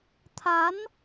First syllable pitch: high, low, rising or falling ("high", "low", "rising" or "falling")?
rising